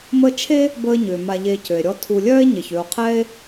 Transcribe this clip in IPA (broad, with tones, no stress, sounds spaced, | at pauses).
m əː˦ t͡ʃʰ e˥ | b əː˦ ɲ ʏː˩ m a˨ ʎ e˨ c ø˩ e̯ ɾʲ ɔ˦ tʰ u˨ lʲ œː˥ e̯ ɲ e˩ ç ø˨ o̯ qʰ ɛː˥ e̯